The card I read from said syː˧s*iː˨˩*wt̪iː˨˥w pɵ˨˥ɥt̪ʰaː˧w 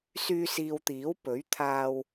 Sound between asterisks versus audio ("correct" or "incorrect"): incorrect